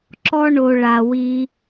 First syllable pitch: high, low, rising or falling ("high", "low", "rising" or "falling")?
high